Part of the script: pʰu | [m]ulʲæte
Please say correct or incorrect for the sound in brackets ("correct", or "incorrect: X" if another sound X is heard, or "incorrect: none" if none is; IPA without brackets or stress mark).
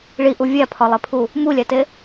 correct